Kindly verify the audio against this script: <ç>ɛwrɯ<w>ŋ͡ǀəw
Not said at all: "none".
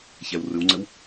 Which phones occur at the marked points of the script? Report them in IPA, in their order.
ç, w

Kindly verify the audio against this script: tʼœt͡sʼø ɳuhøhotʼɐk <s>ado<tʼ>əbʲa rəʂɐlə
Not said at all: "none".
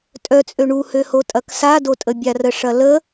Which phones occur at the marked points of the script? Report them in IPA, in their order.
s, tʼ

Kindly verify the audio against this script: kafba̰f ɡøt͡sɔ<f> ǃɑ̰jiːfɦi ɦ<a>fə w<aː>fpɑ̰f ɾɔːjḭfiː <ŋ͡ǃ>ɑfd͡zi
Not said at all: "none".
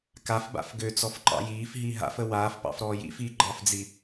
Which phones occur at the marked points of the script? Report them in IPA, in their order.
f, a̰, aː, ɡ͡ǃ

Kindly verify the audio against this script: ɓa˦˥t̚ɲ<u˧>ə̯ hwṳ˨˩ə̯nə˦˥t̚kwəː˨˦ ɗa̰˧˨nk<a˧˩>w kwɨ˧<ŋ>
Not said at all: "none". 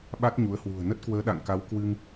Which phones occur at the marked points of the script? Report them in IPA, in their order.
u˨˦, a˨˦, ŋ

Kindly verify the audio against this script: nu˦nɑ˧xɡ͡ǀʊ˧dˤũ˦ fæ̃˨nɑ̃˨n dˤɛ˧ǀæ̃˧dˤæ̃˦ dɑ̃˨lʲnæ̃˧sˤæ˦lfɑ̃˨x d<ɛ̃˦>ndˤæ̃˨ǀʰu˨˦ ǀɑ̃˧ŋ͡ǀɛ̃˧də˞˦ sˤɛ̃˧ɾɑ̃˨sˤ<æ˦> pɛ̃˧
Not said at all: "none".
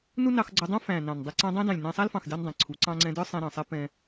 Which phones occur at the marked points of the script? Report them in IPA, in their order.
ɛ˦, ɛ˦

